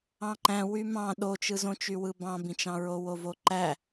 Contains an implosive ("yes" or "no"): yes